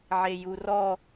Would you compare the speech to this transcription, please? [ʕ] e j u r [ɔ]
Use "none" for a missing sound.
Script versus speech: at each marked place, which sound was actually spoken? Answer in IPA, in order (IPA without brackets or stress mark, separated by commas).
ʕ, ɔ